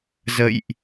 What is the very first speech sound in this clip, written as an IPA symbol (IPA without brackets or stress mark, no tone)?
z